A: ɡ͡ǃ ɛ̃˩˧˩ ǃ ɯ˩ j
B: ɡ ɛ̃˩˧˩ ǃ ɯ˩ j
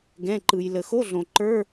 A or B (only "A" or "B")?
B